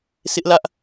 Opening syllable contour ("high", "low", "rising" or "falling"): high